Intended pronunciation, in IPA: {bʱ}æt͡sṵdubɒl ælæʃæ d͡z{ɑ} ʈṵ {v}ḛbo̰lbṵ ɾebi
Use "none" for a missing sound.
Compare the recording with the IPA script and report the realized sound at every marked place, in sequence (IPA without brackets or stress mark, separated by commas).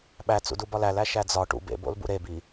ɓ, ɒ, b